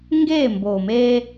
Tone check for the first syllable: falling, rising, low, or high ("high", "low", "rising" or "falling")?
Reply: falling